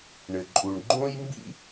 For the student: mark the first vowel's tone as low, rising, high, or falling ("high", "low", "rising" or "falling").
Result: low